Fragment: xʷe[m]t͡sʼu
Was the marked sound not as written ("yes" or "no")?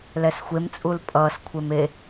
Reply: no